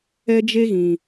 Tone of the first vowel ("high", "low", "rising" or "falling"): high